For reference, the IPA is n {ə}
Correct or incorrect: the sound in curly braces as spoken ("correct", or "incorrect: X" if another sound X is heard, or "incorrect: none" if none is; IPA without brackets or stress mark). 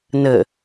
correct